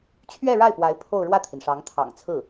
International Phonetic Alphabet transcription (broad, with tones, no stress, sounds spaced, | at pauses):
t͡ɕʰ ɥ ɛ˥˧ ɻ a˥˩ ɪ̯ p w a˧˥ ɪ̯ pʰ o˥˧ ʊ̯ ɻ w ä˥˩ t̪ʰ i˩ n ʂ ɑ˧˥ ŋ t̪ʰ ɑ̰˨˩ ŋ t͡sʰ ɹ̩˥˩